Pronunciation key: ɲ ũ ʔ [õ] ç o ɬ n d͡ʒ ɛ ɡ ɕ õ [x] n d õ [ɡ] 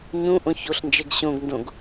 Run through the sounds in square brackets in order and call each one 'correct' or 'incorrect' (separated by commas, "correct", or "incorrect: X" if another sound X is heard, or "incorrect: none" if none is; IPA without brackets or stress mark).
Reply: correct, incorrect: ɡ, correct